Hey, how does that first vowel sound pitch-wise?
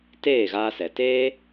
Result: falling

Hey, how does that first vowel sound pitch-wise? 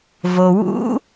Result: low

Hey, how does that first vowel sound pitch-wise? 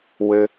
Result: high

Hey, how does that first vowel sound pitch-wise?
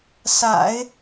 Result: low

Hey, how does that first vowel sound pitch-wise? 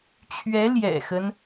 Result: rising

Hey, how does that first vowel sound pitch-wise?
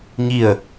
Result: falling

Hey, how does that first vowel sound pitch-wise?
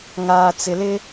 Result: low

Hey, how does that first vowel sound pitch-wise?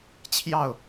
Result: falling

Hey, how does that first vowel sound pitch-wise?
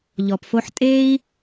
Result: low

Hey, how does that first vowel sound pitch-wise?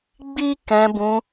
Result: high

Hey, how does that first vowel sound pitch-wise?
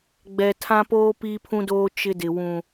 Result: low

